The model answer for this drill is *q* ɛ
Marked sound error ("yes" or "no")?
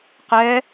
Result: no